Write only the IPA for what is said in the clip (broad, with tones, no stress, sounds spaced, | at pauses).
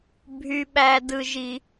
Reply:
bʱ y˥ ɓ æ˥ d ɯ˥ ʒ i˥